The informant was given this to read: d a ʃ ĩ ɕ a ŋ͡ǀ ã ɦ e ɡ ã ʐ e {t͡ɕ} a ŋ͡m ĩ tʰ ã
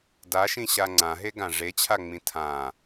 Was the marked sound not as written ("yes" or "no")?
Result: yes